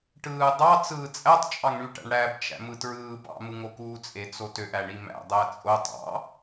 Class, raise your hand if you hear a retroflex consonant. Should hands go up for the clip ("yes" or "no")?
yes